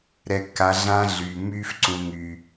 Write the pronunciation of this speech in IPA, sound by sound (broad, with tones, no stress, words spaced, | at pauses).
ɾɛ˨kːa˨ ɮã˦ɮyː˨mːyː˦f ǀũː˨ŋyː˨